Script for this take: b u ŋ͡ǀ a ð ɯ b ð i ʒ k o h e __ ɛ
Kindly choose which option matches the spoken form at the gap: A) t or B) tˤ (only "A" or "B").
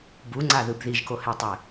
B